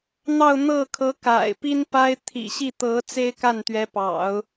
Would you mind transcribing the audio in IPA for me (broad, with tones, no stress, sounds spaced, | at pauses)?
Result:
n̪ ɑ˥˧ ʊ̯ n̪ ɤ˥˩ kʰ ɤ˧˥ k a̰˨˩ ɪ̯ p i˥ n p a˥ ɪ̯ t̪ʰ ḭ˨˩ ɕ i˥˩ t̪ ɤ˧˥ t͡s e˥ ɪ̯ k a˥˩ n t̪ ɥ ɛ˧˥ p ɑ̰˨˩˦ ʊ̯